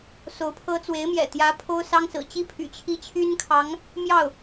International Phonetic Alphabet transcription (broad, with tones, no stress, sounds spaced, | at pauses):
s o˧˥ ʊ̯ pʰ ɤ˥ t͡s w e˧˥ ɪ̯ m j ɛ̰˨˩ t̪ j ä˧˥ pʰ o˥ ʊ̯ s ɑ˥ ŋ s ɹ̩˨˩ t͡ɕ i˥ pʰ y̰˨˩ t͡ɕʰ i˥ t͡ɕʰ y˥ n kʰ ɑ˧˥ ŋ | m j ɑ˥˩ ʊ̯